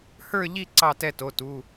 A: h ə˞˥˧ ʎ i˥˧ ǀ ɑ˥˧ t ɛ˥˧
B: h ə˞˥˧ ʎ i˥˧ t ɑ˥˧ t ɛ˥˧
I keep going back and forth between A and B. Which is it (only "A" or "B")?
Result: A